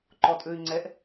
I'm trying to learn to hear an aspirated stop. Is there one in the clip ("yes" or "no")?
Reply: no